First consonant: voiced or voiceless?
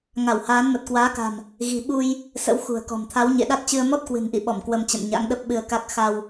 voiced